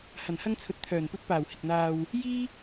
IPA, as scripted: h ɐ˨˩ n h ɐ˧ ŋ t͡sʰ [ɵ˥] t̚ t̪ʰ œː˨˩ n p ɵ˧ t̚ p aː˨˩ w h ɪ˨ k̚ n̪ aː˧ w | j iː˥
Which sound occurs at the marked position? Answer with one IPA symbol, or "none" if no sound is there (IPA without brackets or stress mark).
ɵ˨